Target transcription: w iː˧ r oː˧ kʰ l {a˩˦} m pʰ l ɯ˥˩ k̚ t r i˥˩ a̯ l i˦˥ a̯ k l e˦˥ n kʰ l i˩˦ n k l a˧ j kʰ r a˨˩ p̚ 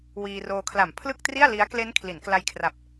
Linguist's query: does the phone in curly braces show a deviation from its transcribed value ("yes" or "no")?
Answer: yes